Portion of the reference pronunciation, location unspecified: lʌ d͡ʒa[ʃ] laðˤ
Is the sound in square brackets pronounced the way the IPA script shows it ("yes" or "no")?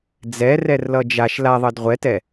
yes